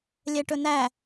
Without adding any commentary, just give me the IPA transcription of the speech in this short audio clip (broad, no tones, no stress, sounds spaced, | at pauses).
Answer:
lʲ ɛ ʈ ɵ n æ